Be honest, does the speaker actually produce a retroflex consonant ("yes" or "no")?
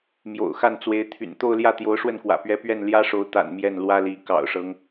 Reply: yes